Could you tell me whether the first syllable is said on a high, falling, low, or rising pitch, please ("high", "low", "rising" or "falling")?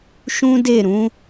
high